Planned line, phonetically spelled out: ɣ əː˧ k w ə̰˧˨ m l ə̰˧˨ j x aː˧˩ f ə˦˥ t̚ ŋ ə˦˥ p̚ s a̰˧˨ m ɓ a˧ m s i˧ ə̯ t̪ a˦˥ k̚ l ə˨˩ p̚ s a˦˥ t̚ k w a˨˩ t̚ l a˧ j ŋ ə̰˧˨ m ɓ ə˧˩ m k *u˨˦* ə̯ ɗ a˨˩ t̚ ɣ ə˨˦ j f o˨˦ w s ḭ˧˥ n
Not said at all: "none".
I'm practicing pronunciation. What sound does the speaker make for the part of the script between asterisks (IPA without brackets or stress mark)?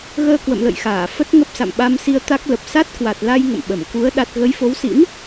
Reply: u˨˦